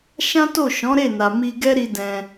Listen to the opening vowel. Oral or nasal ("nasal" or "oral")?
nasal